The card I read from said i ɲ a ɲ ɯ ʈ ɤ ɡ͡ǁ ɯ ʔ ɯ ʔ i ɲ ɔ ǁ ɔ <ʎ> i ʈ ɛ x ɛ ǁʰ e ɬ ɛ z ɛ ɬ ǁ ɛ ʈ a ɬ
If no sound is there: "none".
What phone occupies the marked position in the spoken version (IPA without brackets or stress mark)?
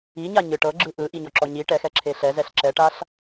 ɲ